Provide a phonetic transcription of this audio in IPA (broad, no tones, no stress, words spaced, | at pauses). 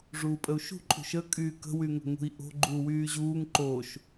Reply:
ʐuːpʼəu̯ʃṳ ǃʼṳʃə kʼyːkə̤ wyŋə̤ŋṳi̯ʔo̤ ɡ͡ǃuːwyːʑuːŋ ǃoʃ